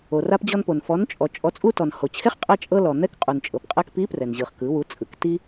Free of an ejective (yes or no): no